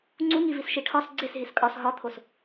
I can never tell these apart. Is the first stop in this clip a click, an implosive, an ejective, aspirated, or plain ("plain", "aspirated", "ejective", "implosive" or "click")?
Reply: click